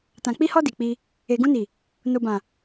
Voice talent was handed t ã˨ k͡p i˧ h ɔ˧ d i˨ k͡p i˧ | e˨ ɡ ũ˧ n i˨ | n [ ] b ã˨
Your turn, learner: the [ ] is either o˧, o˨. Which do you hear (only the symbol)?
o˨